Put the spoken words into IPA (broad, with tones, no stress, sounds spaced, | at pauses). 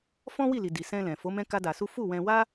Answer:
f ɔ̃˦ w i˦˨ l i˨ d i˨ s ɛ̃˧ l ɛ̃˨ f o˨˦ m ɛ̃˦ k a˦ d a˧ s u˦ f u˦˨ w ɛ̃˧ w a˦